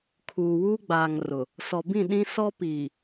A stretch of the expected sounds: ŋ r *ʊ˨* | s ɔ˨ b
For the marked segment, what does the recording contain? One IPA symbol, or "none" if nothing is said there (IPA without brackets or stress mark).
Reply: ʊ˨